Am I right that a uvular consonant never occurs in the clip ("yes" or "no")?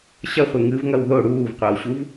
no